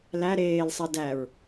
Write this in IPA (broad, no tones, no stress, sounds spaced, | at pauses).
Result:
l æ ɾ eː l sˤ e d æ ɹ